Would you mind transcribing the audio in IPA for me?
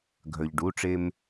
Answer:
ɡʱ œ˩ ʎ ɖ u˩˧˩ ʈ͡ʂ e˧ m

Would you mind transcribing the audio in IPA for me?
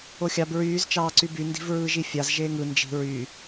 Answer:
o xʲ ɑ b ɹ yː z t͡ʃ ɑː ǀ y b y n d i̤ v ɹ ɯː ʒ i fʲ ɑ z ʒ eː ŋ ɯ n d͡ʒ i̤ ɹ y

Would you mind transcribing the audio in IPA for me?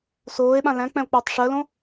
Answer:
s oː e̯ ɓ ã l æ̃ k͡p ɛ̃ o̯ k͡p əː tˤ ʂ ɜ l õ

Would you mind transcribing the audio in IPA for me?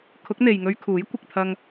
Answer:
kʰ ʊ˨˥ k̚ n̪ e˨ j ŋ ɵ˧ ɥ kʰ uː˨˥ j kʷ ɪ˨ k̚ t̪ʰ ɐ˧ ŋ

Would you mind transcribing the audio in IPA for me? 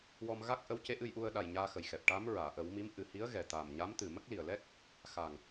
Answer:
w ɔ˧ m ɣ a˦˥ k̚ ʔ ə˧˥ w c e˧˥ ʔ ɨ˧ j ʔ u˧ ə̯ ɗ a˨˩ j ɲ aː˧ x ə˨˩ j x ɛ˨˩ p̚ ʈ a˧˥ m ɹ aː˨˩˨ ʔ ə˨˩˦ w m i˧˥ m ʔ ɨ˨˩ h i˧˥ ə̯ ɣ ɛ˨˩ t̪ aː˨˩ m ɲ a˧˥ m t̪ ɨ˨˩ m ə˦˥ k̚ l i˨˩ ə̯ l ɛ˦˥ k̚ | x a˨˩ ŋ

